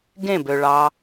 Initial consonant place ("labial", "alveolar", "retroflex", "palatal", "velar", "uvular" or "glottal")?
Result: velar